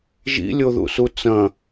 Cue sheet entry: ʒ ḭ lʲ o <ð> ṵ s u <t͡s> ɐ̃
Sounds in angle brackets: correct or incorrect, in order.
correct, correct

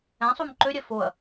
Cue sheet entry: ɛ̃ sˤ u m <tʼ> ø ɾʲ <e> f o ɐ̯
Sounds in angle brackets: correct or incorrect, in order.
incorrect, incorrect

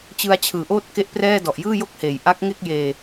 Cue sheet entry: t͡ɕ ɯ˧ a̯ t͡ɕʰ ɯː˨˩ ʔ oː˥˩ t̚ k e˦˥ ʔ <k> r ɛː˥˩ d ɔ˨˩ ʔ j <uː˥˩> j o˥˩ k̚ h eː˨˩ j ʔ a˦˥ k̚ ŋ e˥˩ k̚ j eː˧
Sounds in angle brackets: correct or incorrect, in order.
incorrect, incorrect

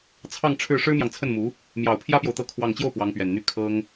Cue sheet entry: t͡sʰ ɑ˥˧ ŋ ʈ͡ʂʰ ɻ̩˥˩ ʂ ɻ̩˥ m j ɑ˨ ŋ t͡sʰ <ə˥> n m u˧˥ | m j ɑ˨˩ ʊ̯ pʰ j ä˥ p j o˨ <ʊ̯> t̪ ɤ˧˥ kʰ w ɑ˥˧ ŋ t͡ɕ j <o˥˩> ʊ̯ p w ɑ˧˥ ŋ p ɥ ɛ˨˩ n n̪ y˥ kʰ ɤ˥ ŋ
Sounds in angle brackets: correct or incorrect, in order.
incorrect, correct, correct

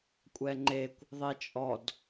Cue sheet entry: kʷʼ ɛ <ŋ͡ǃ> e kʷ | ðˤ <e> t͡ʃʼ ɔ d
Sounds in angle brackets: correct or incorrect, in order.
correct, correct

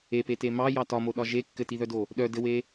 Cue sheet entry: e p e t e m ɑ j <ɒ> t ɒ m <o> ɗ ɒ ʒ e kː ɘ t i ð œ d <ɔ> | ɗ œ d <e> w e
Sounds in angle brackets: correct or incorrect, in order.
incorrect, correct, incorrect, incorrect

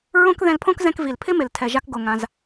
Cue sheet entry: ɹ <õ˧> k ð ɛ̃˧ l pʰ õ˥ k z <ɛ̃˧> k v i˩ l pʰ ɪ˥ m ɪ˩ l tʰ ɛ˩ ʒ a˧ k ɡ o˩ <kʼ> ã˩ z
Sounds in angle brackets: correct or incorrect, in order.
incorrect, correct, incorrect

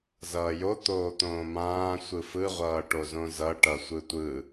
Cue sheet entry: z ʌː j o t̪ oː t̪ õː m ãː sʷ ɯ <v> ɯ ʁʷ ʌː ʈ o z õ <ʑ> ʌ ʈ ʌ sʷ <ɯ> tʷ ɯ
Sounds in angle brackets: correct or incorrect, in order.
incorrect, incorrect, correct

